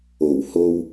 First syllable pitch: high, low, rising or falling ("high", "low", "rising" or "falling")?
low